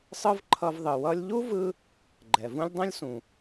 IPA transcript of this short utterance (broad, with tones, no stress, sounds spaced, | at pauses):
sˤ ɯ˥ v ǃʰ ʌ˧ v ðˤ ɯ˩ w ʌ˧ lʲ ʎ u˥ v ɯ˧ | ɡ͡ǃ ɛ˩ v ũ˥ lʲ dˤ õ˥ lʲ s ũ˩